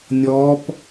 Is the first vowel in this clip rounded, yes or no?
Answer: yes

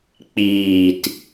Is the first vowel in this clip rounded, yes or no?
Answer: no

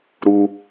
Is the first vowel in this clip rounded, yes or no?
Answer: yes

